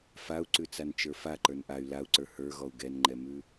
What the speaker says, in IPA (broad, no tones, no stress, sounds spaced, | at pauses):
f a u̯ ǀ ʉ t͡s a n t͡ʃ ə˞ f a ǃ ə˞ n ʔ a y̯ l a u̯ ǀ ə˞ h ə˞ ɣ ɔ u̯ ɡ ɛ n ŋ͡ǃ ɛ m ʉ